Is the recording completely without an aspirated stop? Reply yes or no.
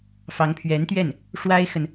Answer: no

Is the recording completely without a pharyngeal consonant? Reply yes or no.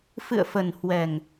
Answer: yes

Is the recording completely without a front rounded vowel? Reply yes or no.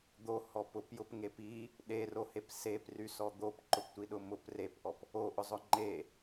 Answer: no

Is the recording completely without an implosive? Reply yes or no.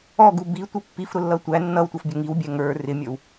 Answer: yes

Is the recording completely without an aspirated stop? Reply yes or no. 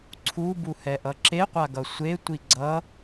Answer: no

